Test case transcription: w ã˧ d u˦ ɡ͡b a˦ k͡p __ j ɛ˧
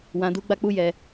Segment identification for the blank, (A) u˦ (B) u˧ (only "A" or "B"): A